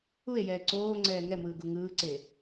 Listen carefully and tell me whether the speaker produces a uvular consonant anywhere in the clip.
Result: no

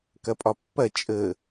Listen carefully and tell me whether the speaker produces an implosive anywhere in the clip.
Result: no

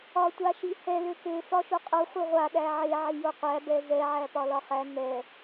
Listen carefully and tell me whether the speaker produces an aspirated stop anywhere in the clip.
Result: no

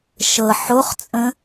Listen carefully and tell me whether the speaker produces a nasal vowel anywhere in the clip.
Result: yes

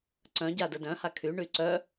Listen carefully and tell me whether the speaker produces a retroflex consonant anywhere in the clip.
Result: yes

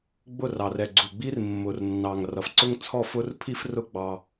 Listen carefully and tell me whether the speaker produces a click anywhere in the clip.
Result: yes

